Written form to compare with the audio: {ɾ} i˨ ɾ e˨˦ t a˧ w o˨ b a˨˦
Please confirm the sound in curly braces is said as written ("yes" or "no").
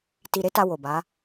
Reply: no